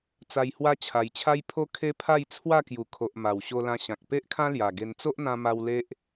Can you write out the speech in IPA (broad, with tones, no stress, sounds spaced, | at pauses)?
t͡s a˧ j h w a˦ t͡ɕʰ a˧ j t͡ɕʰ a˦ j pʰ o˦ kʰ e˦ pʰ a˥˧ j t͡sʰ w a˥˧ k j u˨˩ kʰ o˨ ʔ m a˨˩ w ɕ o˧ l ã˧ ɕ ã˨ k̚ p e˦ ʔ kʰ ã˦ l j a˨˩ ɡ e˧ n t͡s o˦ ʔ n̪ ã˧ m a˧ w l e˦ ʔ